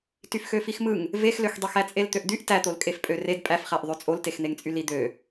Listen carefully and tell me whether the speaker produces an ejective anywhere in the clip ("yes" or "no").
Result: yes